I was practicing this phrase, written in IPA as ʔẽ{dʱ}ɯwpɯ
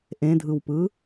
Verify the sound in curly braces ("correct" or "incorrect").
correct